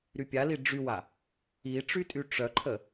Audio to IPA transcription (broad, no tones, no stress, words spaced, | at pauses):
ɾypʲali ɖ͡ʐywa | iʈ͡ʂy tʼyʈ͡ʂœǃʰə